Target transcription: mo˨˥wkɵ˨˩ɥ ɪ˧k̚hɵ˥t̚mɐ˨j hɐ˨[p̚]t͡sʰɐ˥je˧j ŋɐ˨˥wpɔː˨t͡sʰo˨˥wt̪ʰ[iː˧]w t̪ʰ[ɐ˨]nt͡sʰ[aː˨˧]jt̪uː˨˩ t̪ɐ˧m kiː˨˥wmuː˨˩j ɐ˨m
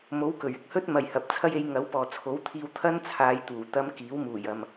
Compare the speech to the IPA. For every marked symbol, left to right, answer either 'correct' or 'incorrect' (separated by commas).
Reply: correct, correct, incorrect, correct